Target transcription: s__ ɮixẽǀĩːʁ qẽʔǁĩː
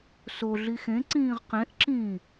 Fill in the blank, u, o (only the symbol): o